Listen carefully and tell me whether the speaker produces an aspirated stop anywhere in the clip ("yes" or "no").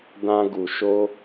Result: no